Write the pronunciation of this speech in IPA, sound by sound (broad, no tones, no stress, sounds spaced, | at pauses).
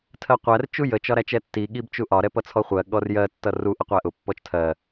tʰ ɜ qʷ æ r t͡ʃ u j ə t͡ʃ ɒ ɾ æ t͡ʃ ɛ tː i ɠ i b t͡ʃ u ʔ ɒ ɾ ɛ p ʌ t͡sʰ ɔ χʷ ɜ ɠ ɔ r j ɜ tː ʌ r u ʔ ə qʷ æ ʔ ʊ pː ɔ t͡ʃ tʰ ɜ